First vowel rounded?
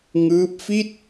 no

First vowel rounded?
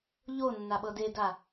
yes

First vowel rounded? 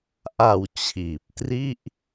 no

